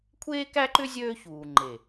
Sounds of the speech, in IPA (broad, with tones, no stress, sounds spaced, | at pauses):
kʷʰ eː˦ k æ˦ ǃ ʏ˦ zʲ øː˦ ç uː˨ ŋ͡ǃ e˨